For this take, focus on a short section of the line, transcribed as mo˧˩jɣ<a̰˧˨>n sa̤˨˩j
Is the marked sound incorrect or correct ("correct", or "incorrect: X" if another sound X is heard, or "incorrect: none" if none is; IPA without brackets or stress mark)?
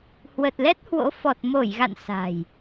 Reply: correct